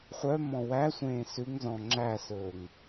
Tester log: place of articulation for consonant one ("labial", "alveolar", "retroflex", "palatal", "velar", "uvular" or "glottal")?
uvular